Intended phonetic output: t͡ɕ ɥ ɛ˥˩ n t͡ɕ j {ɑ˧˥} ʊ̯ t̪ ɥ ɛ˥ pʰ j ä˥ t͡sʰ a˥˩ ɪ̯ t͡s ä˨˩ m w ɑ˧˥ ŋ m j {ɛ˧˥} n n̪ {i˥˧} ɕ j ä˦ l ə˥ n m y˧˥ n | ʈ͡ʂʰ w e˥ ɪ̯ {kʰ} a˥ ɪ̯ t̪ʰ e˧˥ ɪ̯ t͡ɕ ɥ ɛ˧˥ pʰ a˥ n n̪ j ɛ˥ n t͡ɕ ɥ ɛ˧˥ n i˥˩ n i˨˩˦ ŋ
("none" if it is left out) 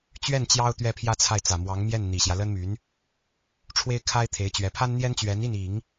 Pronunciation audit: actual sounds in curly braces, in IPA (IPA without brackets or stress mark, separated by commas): ɑ˥, ɛ˥˩, i˨˩, kʰ